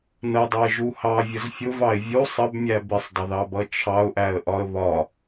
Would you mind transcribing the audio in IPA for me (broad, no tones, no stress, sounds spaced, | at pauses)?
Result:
n ə dˤ u ɪ̯ ʒ u h ɑ vʲ ə z fʲ ʊ v ɑ ɪ̯ vʲ u sˤ ə b mʲ æ b ɪ sˤ dˤ ə ð ɑ b ʌ t͡ʃʰ ɑ ʊ̯ ʔ æ ə̯ ʔ ɒ ə̯ β ɒ